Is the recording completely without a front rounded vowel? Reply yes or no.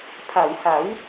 yes